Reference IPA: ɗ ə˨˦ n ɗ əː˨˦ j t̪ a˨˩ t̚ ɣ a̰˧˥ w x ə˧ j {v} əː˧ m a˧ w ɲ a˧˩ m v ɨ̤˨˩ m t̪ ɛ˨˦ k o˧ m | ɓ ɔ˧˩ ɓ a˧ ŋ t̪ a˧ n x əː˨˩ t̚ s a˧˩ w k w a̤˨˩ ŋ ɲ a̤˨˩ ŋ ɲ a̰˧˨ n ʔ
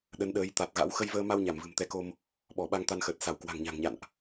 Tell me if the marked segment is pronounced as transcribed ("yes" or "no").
yes